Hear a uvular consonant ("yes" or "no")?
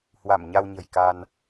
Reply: no